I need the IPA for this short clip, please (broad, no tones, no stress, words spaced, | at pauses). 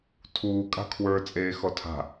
tʰuː kʼa̤kʰwə˞ t͡sʼeːxɔtʰa̤